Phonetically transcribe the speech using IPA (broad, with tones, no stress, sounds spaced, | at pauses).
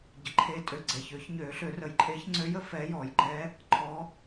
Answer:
ɟ ə˨˩ ǃʰ eː˧˥ tʼ ø˨˩ ɡ͡ǀ ɛ˨˩ ç ø˨˩˦ ç ɲ øː˨˩˦ ɬ ø˨˩˦ r ə˨˩˦ j ǃʼ eː˧˥ ç ŋ͡ǀ ø˧˥ j ə˨˩˦ f ɛː˧˥ j ɔː˨˩˦ j ɡ͡ǃ ɛ˧˥ | ǃʰ ɔ˧˥